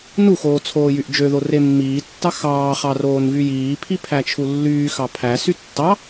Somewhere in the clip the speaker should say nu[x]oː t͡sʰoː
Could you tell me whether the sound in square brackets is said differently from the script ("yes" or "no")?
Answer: no